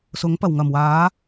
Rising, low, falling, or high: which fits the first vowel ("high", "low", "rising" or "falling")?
rising